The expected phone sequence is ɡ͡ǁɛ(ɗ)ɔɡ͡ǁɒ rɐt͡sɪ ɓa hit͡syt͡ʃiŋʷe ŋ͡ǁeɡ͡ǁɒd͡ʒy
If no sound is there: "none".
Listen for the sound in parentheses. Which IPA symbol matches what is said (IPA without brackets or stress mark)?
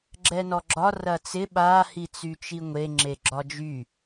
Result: n